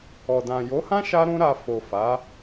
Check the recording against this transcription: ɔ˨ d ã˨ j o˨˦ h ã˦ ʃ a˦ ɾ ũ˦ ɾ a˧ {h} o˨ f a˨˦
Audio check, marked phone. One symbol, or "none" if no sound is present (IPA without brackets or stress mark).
f